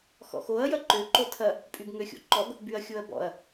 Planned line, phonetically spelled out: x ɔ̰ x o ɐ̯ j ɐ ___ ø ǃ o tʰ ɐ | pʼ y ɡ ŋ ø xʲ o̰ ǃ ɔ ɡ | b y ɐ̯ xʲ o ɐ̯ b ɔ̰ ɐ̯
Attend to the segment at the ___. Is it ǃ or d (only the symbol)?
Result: ǃ